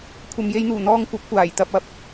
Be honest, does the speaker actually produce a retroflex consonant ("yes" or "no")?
no